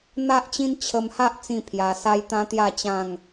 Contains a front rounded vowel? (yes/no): no